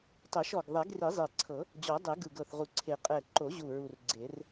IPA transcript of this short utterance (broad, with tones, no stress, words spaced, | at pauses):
tˤɛ˨˩˦ʃɔ˨˩ɡ ðˤɛ˨˩˦ɡri˨˩˦zˤe˨˩ǀʰɤ˨˩˦ | d͡ʑɔ˨˩˦dˤe˨˩˦ ɡɯ˨˩ɡɤ˨˩θʁu˨˩ǀʰe˨˩˦ qʼɛ˨˩ǃo˨˩˦ʑu˨˩ ɹu˨˩r ɡ͡ǀe˨˩˦r